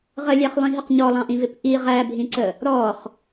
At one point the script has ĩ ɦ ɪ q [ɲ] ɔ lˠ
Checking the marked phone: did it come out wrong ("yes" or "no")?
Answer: no